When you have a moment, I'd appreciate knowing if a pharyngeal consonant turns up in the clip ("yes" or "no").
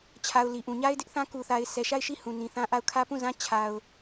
no